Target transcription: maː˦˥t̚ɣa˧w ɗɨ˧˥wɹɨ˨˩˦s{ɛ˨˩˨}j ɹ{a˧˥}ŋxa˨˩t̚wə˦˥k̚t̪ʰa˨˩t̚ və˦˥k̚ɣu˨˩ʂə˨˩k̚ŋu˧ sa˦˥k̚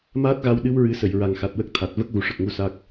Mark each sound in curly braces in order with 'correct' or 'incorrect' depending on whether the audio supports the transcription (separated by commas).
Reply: incorrect, incorrect